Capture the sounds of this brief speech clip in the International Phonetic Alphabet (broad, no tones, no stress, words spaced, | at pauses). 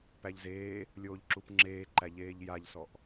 pæʎzeː | lʲoːʎǁupŋ͡ǁeːǃæ ʎeːʎjaʎsɔʔ